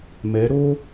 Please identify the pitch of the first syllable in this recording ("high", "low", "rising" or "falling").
rising